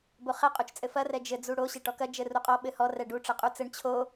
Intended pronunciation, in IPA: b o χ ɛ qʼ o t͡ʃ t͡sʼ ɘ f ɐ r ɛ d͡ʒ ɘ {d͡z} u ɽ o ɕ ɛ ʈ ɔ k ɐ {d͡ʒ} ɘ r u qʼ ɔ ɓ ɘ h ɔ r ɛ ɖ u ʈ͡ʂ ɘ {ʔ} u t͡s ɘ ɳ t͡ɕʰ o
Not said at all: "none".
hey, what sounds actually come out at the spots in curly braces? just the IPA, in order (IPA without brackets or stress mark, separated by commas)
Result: d͡z, d͡ʒ, qʼ